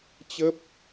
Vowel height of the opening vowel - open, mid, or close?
mid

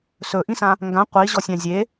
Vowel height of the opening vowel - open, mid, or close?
mid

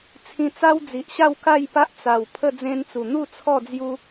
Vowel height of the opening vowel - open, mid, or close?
close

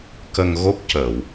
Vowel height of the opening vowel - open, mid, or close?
mid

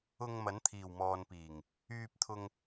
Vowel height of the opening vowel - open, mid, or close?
close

